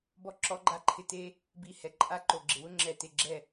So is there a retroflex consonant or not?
no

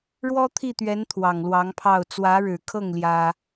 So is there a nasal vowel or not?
no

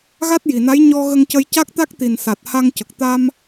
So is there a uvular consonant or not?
no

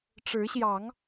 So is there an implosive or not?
no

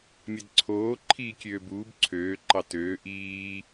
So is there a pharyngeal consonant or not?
no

